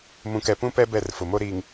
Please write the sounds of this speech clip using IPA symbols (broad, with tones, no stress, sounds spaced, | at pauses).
m ũ˨ k ɛ˨ p ũ˦ p ɛ˦ b ɛ˦˨ r f ʊ˨ m o˦ ɾ iː˨ ŋ